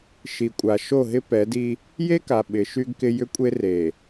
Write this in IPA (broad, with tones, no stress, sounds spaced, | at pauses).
ʃ i˨ kʷʼ a˨ ʃ o˦˨ ɦ ɪ˦ p ɛ˨˦ d i˦ | j e˦ k a˨ ɓ ɪ˨˦ ʃ y˦ ɡ k ɪ˦ j ʏ˦ kʷʼ e˦ r e˨